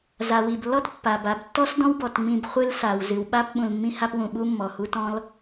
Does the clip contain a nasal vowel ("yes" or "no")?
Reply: yes